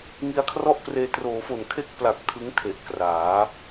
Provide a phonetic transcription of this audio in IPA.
ŋ i˧ a̯ kʰ r ɔ˥˩ ʔ p r eː˧ t r oː˩˦ f o˨˩ n kʰ e˥˩ k̚ p l a˨˩ k̚ tʰ ɯ˦˥ ŋ tʰ e˨˩ ʔ k r aː˩˦

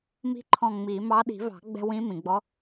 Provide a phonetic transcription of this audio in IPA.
m i̤˧˥ ǃʰ ɔ̃˧˩ ŋ͡m i˨˩˦ m ɑ˧˥ ɗ i̤˨˩˦ v ɑ̤˨˩˦ ɡ͡b ɛ̤˧ w ĩ˧˥ m ĩ˩ ɡ͡b ɔ˧˥

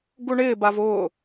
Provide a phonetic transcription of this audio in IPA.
ɡ u ɳ ɪː b a v ʊː

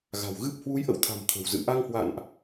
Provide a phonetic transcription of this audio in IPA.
ɣ a̤˨˩ w ɣ ɨ˦˥ p̚ h w u˨˦ j ʔ ə̰˧˨ w t̪ʰ a̤˨˩ m t̪ʰ ə̤˨˩ w z ɨ̰˧˨ ʔ a˧ ŋ h w a̰˧˨ n ʔ

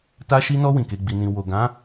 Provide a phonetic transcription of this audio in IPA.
t a˧ ʃ i˧ n ɔ˧ w ĩ˨ k e˨˦ ɡ͡b i˧ n ĩ˧ w o˨ ɡ ã˨˦

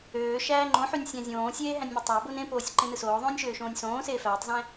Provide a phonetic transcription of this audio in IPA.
øː ʃ æː ŋ͡ǃ õ ħ y nʲ sʲ æ̃ zʲ õː sʲ eː ɦ æ̃ nʲ m o tˤ o b o n ẽ p oː sʲ ǃ ẽ n ɯ s oː ðˤ õː nʲ ʃ øː ʃ õː nʲ s õː s eː f æː tˤ z æ̃

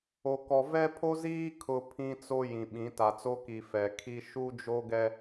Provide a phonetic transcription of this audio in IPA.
o˨ k ɔ˨ v ɛ˦ pʰ o˦ z iː˦ kʰ ʊ˨ pʰ ĩ˦ t͡s o˦ j ĩ˨ ɓ ĩ˨˦ t a˨ t͡s o˦ k i˨ f ɛ˨ kʰ i˦ ʃ u˦ d͡ʒ o˦ ɡ ɛ˦

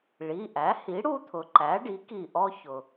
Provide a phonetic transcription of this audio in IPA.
ɭ i˩˧˩ ʔ æ˩˥ h i˩˥ ɽ u˦ t̪ʰ ʊ˩ ǃ æ˩˥ ɖ i˩˥ k i˧˩ ʔ ɔ˦ ç ʊ˩

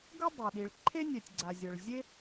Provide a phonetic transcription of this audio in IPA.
ɡ ɤ˥ dˤ ɛ˩ ɗ i˩ ɭ ǃʰ e˥ nʲ ɛ˩ tʲ ɡ͡ǀ a˩ zʲ ɤ˩ ɭ zʲ e˥

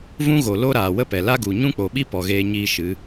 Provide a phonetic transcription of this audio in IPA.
v ũ˦ ɣ o˨ l o˦ ɾ aː˨ w ə˦ p ɛ˨ l a˦ ɡ u˨ ɲ ũ˦ k͡p o˨ ɓ i˦ p ɔ˨ ɣ eː˧ ɲ iː˦ ʃ ɨ˨˦

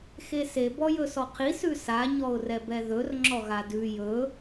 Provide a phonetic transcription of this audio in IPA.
x e s e b ɔ j ɵ s ɔ qʰ i s ʉ s a ɲ ɔ ʊ̯ r ɛ b ɛ ð ɵ r ŋ͡ǁ ɔ ɣ a d ʉ j ɵ

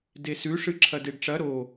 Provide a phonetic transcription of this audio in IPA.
d e s ʉ ʂ ɨ ǁʰ ɐ d e ɖ ʈ͡ʂ ɐ ɾ o

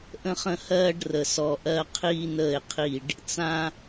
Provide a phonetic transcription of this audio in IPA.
ʔ ə̃˦ χ ə̃˦ h ɜː˦ ɖ r ə˨ s ɔ˨ ʔ ɜ˦ qʰ iː˦ n əː˦˨ e̯ qʰ i˦˨ ɖ | t͡s ã˦

